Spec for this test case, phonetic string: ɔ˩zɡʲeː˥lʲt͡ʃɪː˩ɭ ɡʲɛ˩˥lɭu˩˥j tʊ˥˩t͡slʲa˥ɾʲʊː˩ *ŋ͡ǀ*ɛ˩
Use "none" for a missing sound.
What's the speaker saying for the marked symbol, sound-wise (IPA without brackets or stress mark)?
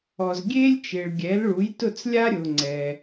ŋ͡ǀ